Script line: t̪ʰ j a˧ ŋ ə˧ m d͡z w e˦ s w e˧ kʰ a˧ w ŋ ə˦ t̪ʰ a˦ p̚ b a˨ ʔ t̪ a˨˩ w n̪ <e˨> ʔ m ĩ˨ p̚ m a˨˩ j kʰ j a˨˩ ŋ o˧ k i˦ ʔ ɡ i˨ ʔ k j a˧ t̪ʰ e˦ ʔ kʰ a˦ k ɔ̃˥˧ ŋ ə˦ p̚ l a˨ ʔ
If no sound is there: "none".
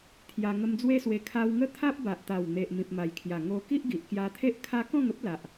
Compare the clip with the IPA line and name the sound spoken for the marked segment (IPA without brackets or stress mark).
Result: e˨